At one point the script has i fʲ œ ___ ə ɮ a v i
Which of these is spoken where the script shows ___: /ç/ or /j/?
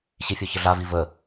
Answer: ç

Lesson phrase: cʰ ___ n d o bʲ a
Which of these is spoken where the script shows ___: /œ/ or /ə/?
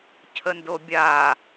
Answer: ə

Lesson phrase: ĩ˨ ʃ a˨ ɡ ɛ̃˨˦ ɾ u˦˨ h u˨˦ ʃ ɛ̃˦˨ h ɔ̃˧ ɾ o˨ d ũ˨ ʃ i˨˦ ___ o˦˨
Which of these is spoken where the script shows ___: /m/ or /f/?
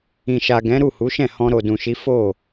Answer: f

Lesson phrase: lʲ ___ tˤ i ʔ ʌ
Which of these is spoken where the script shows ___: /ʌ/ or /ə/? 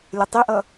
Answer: ə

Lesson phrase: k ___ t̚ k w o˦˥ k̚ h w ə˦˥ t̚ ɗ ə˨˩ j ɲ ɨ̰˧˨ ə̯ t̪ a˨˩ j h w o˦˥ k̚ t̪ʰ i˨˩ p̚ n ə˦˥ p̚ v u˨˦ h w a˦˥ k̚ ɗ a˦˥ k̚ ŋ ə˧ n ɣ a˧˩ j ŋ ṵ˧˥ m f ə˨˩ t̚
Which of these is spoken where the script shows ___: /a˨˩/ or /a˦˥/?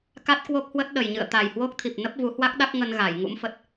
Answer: a˦˥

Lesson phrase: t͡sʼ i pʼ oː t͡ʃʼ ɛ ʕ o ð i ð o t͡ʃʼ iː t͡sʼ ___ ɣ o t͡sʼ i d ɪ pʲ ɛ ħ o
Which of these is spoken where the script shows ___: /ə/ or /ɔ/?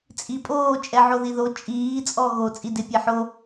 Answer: ɔ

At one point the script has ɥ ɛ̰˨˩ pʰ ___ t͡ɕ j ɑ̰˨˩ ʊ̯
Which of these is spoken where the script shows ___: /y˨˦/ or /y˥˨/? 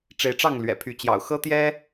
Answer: y˨˦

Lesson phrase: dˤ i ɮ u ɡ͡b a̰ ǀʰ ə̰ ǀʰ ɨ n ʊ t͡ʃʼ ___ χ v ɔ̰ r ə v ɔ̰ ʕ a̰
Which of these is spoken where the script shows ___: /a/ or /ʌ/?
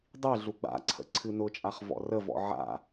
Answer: a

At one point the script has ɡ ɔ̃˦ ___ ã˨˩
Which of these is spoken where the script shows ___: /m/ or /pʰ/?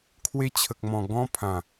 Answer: pʰ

